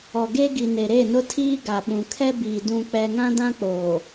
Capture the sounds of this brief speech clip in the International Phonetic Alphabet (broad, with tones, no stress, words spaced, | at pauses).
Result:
ɔ˨ɡe˦ɡi˨ ne˨ɾe˦˨nʊ˦tʰiː˦ ɡa˨ɓũ˨kʰɛ˦biː˨ dũ˦k͡pɛ˦ ŋã˦dã˦k͡poː˨